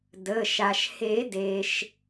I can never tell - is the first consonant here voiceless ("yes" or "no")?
no